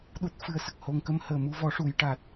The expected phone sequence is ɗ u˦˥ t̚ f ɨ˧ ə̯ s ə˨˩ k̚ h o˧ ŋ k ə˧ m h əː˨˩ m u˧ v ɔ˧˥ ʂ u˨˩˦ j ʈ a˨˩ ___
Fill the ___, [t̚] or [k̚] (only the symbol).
t̚